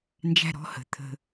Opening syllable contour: high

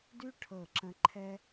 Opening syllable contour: high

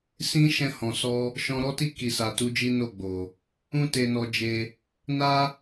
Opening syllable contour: high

